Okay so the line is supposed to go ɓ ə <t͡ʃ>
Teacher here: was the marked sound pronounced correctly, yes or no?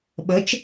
yes